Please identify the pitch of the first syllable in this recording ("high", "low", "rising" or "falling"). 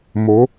rising